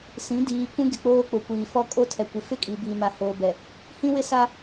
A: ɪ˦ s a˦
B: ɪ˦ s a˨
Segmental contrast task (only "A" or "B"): A